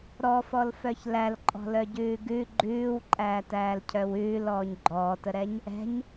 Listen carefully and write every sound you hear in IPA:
ɾ ɔ f ɔ l f œ ç l æ l ǃʼ ɔ̤ l œ ɟ ʉː ɡ ʉ ɡ͡ǃ ʉː w ǃʼ æː t æː l cʰ œ w ʉː l ɔː ɲ ɡ͡ǃ ɔː t ə ɾ ɛ ɲ | ɛ̤ ɲ

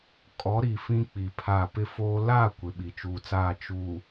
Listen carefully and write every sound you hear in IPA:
kʼ ɔ˨˦ ɾ i˨ f ĩ˦ k͡p i˨ pʰ a˦˨ p ɪ˦ f oː˦ l a˦˨ kʷ ɪ˨˦ ɓ i˨ t͡ʃ uː˨ t͡s aː˦˨ t͡ʃ u˨

